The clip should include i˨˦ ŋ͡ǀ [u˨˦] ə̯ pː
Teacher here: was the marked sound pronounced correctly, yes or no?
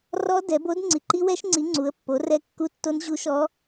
yes